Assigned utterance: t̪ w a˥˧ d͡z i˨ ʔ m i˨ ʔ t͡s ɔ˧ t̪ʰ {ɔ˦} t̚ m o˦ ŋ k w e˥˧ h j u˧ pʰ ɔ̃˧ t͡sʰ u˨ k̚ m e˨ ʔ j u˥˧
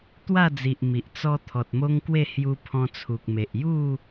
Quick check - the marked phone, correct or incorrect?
incorrect: ɔ˨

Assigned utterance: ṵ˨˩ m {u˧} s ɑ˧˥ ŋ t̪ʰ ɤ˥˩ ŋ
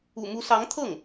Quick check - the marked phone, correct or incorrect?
incorrect: u˧˥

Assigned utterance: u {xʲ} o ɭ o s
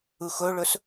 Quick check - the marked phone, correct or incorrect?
incorrect: x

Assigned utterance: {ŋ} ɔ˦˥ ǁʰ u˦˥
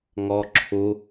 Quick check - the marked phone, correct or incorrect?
correct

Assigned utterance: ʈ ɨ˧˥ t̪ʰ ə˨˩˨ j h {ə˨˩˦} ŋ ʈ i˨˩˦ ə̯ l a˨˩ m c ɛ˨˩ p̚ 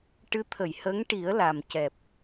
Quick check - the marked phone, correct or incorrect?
incorrect: ə˧˥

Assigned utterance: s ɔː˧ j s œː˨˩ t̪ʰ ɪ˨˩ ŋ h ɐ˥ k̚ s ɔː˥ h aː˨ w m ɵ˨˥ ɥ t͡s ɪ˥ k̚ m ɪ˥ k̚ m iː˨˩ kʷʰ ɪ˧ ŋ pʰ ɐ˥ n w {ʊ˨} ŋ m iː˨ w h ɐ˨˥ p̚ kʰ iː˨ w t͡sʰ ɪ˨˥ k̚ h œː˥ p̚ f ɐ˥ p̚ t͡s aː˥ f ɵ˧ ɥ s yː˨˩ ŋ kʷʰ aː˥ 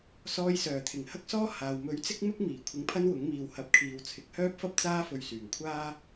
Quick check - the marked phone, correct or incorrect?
incorrect: ʊ˨˥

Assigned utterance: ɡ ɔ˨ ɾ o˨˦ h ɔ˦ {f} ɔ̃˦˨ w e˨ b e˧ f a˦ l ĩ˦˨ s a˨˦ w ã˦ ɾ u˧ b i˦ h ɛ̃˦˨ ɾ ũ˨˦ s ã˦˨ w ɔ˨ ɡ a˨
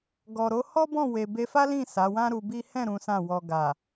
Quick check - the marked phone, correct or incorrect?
incorrect: b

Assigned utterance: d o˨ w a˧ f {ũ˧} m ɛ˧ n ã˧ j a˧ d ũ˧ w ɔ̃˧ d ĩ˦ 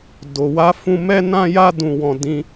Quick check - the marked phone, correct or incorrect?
correct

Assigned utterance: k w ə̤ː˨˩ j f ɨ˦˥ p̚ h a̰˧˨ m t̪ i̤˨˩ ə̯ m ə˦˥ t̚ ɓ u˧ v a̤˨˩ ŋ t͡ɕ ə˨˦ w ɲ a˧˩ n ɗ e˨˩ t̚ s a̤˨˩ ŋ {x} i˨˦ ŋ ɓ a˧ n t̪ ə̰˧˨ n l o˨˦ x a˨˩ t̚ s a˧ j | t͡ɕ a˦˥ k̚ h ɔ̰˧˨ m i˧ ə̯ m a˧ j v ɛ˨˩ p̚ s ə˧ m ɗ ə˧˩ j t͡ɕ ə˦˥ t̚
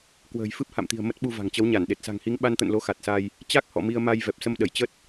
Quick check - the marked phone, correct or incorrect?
incorrect: h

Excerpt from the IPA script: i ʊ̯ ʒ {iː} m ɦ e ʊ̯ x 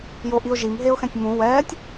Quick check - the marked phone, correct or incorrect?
incorrect: i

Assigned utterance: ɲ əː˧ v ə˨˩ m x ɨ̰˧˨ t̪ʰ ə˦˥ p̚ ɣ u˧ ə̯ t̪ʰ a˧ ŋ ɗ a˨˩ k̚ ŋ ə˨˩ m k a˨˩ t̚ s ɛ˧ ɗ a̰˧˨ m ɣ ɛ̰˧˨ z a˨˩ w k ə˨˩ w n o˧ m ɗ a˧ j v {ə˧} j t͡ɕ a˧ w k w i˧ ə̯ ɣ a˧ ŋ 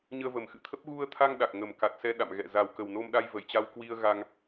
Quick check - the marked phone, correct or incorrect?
incorrect: ə˧˩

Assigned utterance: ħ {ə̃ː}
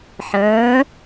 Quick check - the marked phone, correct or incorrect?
correct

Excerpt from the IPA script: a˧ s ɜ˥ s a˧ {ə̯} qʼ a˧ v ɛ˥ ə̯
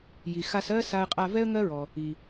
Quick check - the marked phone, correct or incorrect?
correct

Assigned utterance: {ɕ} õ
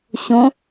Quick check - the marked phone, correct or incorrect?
correct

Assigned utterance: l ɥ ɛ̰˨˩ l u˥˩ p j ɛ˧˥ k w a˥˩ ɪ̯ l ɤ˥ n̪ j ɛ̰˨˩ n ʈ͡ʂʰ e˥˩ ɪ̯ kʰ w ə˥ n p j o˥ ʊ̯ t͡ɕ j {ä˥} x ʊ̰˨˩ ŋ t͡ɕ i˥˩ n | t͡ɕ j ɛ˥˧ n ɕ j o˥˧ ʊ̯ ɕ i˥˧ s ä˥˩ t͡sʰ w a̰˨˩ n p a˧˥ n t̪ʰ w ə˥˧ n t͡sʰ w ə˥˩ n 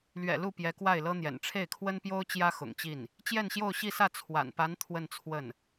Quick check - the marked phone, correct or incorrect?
correct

